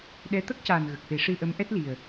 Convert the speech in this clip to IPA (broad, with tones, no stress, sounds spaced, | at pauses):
ɗ ɛ˧˥ t̪ ə˦˥ k̚ c aː˨˩ n ɣ ə˨˩ k̚ f e˨˩˦ ʂ ɨ˧ ʔ ə˧˥ m ʔ ɛ˦˥ t̚ l i˨˩ ə̯